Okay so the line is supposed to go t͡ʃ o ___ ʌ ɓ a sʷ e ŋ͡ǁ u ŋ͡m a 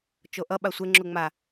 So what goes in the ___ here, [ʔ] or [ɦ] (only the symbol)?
ʔ